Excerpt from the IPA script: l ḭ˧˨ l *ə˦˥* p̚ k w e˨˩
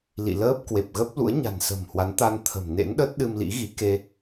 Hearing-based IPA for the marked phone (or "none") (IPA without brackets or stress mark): əː˦˥